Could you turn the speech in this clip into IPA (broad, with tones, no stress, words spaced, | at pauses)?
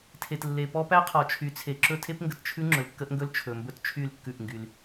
tʰe˨tlːe˨pɔ˦ pæ˦qʰɔ˨t͡ʃʰy˨˦t͡sʰe˨ ǁɵ˦tʰe˦pŋɡə˨t t͡ʃʰʉ˦ ŋ͡ǁɵ˨lkːə˦ʔŋɡɵ˦l t͡ʃʰɵ˨mbɵ˦tt͡ʃʰy˦˨lkːʉ˦˨ʔ ŋɡy˦l